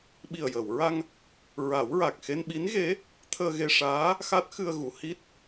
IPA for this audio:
ɓ i˨˩ ə̯ j əː˨˩˨ w ɹ a˧ ŋ | ɹ a˨˩˦ w ɹ a˨˩ k̚ x e˧ n ɓ i˧˥ n ɣ e˧˥ | t̪ʰ əː˧ ɣ e˧ ʂ aː˧˥ | x a˦˥ t̚ x ɨ˧ ə̯ ɣ u˨˩˨ h i˦˥ t̚

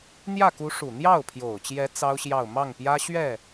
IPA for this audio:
n̪ j ä˥˩ k u˧˥ ʂ u˨˩ n̪ j ɑ˥˩ ʊ̯ pʰ j o˨˩ ʊ̯ t͡ɕ j ɛ˧˥ t͡s ɑ˥ ʊ̯ ɕ j ɑ˥˧ ʊ̯ m ɑ˥˩ ŋ p j ä˥ ɕ ɥ ɛ˥˩

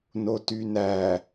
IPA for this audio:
n o t y n æ

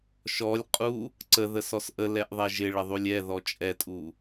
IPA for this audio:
ʃ ɔ lʲ qʼ u | ǀ ə ð ə s ɔ s ʔ ə l ɛ ʔ ðˤ ɛ ʒ ɪ ɭ ə ðˤ u lʲ ɛ ð ɔ t͡ʃʼ ɛ tʼ u

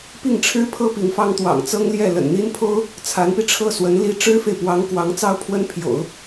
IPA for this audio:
p i˥˩ ŋ ʈ͡ʂʰ ɻ̩˥ pʰ ɤ˥ p i˧˥ ŋ f ɑ˥ ŋ t̪ w ɑ̰˨˩ ŋ t͡s ɤ˥ ŋ l j ɛ˥˩ l ə̰˨˩ n n̪ i˥ n pʰ o˥ ʊ̯ | t͡sʰ a˧˥ n p i˧ ʈ͡ʂʰ ɤ˥˩ s w ə˧˥ n l i˥ ʈ͡ʂ ɻ̩˥ f e˨ ɪ̯ p w ɑ˧˥ ŋ k w ɑ˧˥ ŋ t͡s ɑ˥ ʊ̯ pʰ w ə˥ n pʰ j o̰˨˩˦ ʊ̯

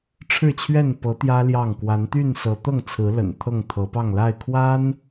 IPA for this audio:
ʈ͡ʂʰ ɻ̩˥˨ t͡ɕʰ ɥ ɛ˥˨ n p ɤ˨˦ t̪ j ä˦ l j ɑ˥˨ ŋ k w a˨˦ n t̪ y˥˨ n s ɤ˨˦ t̪ ɤ˥˨ ŋ t͡sʰ ɹ̩˨˦ l ə̰˨˩ n t̪ʰ ɤ˥˨ ŋ t̪ʰ ɤ˨˦ p ɑ˥˨ ŋ l a˥˨ ɪ̯ kʰ w a˦ n

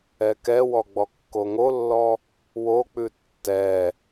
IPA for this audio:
ɛ k ɛ w ɔ ɡ͡b ɔ kː o ŋ o lː ɔ | w o k͡p ʉ tː ɛ

